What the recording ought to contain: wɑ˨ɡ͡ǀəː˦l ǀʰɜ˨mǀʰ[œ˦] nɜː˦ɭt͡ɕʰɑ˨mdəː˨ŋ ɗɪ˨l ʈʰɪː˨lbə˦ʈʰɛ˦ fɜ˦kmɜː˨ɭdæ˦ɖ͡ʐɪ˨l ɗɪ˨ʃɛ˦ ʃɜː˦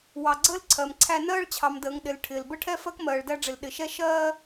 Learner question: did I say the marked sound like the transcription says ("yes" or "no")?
no